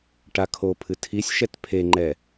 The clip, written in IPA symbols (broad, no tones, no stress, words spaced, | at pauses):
ʈakʰopʰɨ tʰisʲʃɛt pʰeŋ͡ǃɛ